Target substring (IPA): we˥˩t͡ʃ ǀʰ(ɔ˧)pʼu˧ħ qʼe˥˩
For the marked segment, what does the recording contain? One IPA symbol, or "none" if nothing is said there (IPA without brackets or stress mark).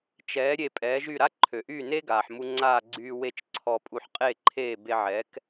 ɔ˧